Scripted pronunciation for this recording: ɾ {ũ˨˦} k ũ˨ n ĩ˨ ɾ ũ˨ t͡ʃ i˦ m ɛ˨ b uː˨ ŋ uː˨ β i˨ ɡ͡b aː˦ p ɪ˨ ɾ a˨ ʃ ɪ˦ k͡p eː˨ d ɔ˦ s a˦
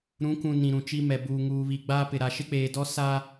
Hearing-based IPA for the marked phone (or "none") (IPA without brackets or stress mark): ũ˨˦